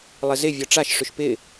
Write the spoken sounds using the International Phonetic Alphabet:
lˠ ɪ z ɪ vʲ ɔ ʈ͡ʂ a ʃ ʂ ʏ ʃ p ɪ

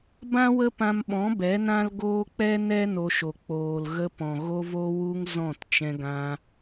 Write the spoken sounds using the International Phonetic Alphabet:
b ã˦ w ə˦ p ã˧ m ɓ ɔ̃˨˦ b ɛ˨˦ n ã˦ l ɡ oː˦ k͡p ɛ˦ n ɛ˦ n o˧ ʃ o˨ k͡p oː˨ l ɣ ə˧ p ɔ̃˨ ɣ o˦ v o˦ w u˦ ŋ z ɔ̃˦˨ t t͡ʃ ɛ̃˧ ɡ ã˧

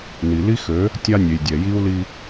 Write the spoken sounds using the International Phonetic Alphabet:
n i˨ l i˦ x ø˨˦ | tʲ a˦ nʲ e˨ j dʲ ɛ˨ j i˦ u̯ l i˦

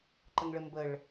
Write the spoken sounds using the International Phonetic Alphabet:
ǃ ə ŋ ɭ ɘ m b ə ɭ

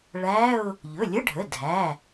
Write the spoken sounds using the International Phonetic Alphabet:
ɭ æ˧˥˧ ʊ̯ | ʎ ɵ˩˧˩ lʲ ə˧˥˧ ɖʱ ə˩˧˩ dʱ æ˩˧˩

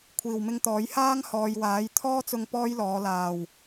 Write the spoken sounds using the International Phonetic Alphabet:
kʷʰ iː˨˩ w m ɪ˧ ŋ t̪ ɔː˨˥ j h aː˥ ŋ h ɔː˨ j w aː˨˥ j t̪ʰ ɔː˥ t͡s ʊ˧ ŋ p ɔː˥ j l ɔː˨˧ l aː˨˩ w

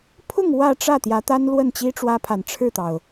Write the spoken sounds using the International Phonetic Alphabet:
pʰ ʊ˥˧ ŋ w ä˥˧ ʈ͡ʂ ä˥˩ t̪ j ä˧˥ t̪ a˥ n l w ə˥˩ n t͡ɕ i˥ ʈ͡ʂ w ä˥ pʰ a˨˩ n ʈ͡ʂʰ ɻ̩˥˩ t̪ ɑ˩ ʊ̯

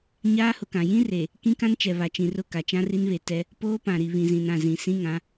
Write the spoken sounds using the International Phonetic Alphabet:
ɲ aː˦ h ʊ˨ k ã˨ j ĩ˦ r e˨ | k ĩ˦ k ã˦ n t͡ʃ ɛ˨ β a˨ t͡ʃ ĩ˨ r ʊ˦˨ k a˨ t͡ʃ ã˦ r i˦ n β e˨ t ɛ˦ | p oː˦ p ã˨ ɾ i˨ β ĩ˨ z ĩ˨ n ã˦˨ z ĩ˨ s ĩ˦ ŋ ã˨˦

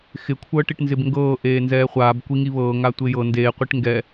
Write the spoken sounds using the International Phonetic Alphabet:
x ɪ kʷʰ ɤː ʈ i ʈ n z ɪ b ŋ ɡ ɤː ʔ eː n z ɛː χʷ aː b kʷ i ŋ i β ɤː ŋ a tʷ ɪː j ɤ n d eː qʷ i ʈ ŋ ɡ ɛ

